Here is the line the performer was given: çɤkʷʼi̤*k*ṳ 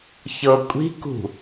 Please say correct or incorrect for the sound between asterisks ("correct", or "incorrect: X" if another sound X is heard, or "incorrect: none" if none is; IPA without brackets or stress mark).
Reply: correct